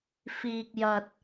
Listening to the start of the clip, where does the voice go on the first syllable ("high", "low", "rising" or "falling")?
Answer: low